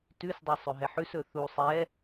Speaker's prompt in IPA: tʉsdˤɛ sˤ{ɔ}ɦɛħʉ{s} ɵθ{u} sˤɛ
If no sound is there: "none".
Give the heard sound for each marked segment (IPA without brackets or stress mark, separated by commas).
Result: ɵ, s, u